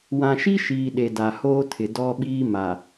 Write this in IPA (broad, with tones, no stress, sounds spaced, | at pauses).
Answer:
w ã˨ ʃ i˦ ʃ iː˨ ɗ e˨ d a˨ h oː˦ tʰ ɪ˨ d ɔ˦ ɓ iː˦ m a˨